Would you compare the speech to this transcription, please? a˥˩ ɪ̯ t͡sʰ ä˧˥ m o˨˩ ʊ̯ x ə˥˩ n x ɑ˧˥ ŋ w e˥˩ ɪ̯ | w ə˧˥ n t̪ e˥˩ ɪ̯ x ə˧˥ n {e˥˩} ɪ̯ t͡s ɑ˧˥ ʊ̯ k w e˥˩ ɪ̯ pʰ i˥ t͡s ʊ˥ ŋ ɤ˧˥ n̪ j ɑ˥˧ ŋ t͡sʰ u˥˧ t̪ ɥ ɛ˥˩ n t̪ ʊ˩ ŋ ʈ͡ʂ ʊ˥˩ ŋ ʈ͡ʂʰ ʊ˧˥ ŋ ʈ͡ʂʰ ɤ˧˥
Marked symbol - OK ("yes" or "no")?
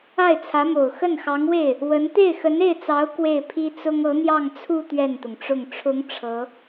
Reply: yes